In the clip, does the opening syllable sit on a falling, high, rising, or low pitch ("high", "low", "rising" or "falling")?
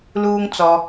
low